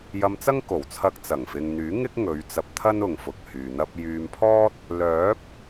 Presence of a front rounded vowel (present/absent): present